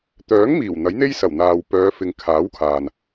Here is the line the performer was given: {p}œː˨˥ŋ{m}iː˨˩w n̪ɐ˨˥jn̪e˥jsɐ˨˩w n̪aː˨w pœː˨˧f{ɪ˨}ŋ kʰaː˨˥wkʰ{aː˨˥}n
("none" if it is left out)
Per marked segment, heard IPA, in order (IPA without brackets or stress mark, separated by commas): t̪, m, ɪ˨, aː˨